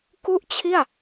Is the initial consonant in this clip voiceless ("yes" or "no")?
yes